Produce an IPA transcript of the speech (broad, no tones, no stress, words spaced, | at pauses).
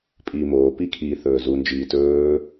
pʼiːmoːpi kʰi θɵːzund͡ʒiː tɵː